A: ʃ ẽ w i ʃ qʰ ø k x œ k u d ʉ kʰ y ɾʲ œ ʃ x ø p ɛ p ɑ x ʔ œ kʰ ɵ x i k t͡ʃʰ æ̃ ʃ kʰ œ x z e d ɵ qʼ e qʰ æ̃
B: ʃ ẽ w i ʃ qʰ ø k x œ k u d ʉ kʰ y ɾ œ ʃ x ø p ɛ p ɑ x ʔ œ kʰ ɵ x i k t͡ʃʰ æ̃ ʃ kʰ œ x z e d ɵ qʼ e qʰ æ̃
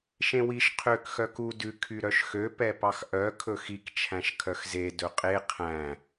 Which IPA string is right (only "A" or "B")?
B